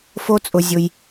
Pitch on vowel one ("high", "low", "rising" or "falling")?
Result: high